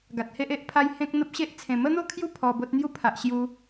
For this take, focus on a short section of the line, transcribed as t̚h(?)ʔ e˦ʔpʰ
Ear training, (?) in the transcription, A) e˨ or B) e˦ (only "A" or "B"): B